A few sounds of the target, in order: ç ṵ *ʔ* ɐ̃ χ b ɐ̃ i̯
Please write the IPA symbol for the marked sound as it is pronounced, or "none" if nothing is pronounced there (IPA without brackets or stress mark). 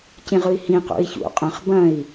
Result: qʼ